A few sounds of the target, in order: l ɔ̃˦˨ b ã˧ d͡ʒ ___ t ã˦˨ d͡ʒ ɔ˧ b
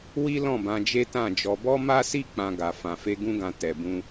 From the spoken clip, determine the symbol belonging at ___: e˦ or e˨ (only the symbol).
e˦